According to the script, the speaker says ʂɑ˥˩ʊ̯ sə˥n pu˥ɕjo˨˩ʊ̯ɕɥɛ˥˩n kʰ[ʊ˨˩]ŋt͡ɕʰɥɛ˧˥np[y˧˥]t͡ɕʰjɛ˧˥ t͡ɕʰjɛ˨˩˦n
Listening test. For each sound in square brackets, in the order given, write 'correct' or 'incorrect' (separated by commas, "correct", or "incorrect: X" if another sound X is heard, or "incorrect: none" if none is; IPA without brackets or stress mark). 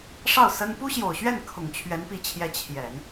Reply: correct, incorrect: i˧˥